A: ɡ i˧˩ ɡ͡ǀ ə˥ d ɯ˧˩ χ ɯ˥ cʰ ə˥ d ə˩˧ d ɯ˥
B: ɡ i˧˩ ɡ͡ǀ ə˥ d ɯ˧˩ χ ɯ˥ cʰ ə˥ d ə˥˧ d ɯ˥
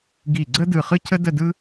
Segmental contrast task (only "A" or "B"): B